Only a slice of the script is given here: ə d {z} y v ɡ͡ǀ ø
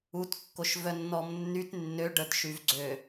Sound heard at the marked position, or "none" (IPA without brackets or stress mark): ʃ